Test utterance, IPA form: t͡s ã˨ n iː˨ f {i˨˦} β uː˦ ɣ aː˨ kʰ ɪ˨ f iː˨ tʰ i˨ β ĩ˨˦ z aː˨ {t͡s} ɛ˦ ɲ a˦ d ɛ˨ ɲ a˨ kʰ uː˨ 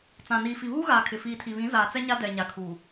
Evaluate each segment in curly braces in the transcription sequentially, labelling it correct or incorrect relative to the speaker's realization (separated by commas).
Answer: incorrect, correct